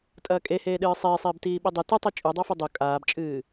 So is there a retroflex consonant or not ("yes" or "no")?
no